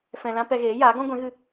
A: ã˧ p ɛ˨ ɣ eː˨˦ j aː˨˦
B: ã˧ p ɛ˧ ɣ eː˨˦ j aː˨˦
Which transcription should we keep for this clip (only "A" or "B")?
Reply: B